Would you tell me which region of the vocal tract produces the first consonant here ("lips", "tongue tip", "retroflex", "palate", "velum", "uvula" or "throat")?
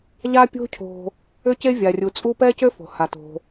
palate